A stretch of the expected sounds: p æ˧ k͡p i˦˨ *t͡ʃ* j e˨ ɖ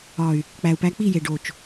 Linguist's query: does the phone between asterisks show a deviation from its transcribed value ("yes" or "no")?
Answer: yes